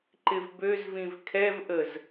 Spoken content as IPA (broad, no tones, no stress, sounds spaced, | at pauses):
ǃ ɪ v b ø z v ĩ v kʰ ɛ v ʔ ə z